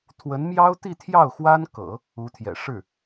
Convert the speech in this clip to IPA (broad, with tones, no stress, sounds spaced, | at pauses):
t̪ʰ w ə˧˥ n m j ɑ˥ ʊ̯ t̪ i˥˧ t̪ʰ j ɑ˥˩ ʊ̯ x w a˥ n k ɤ̰˨˩˦ | u˧˥ t̪ʰ j ɛ̰˨˩ ʂ ɻ̩˥˩